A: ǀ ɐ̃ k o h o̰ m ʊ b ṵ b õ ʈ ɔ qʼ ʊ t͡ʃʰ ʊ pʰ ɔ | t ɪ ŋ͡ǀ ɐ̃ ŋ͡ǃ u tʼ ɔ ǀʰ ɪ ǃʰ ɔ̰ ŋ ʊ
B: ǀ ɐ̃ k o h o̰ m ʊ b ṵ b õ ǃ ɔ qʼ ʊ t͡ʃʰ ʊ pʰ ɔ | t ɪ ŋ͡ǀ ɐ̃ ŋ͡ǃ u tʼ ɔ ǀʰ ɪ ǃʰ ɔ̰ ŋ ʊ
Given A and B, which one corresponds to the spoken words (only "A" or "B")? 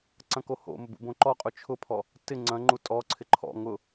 B